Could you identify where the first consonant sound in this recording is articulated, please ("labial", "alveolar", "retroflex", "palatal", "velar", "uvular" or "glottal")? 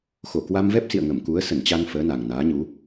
velar